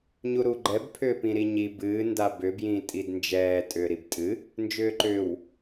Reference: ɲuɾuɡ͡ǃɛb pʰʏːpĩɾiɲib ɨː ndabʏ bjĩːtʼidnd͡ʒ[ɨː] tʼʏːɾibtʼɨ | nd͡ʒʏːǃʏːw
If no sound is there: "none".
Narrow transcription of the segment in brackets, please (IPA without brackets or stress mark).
ɛː